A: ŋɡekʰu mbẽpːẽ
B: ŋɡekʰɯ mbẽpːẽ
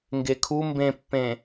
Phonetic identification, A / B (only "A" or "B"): A